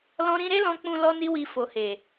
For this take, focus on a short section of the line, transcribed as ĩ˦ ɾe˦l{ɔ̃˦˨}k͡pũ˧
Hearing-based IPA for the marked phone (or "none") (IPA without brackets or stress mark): ɔ̃˧